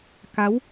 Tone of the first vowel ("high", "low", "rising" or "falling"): rising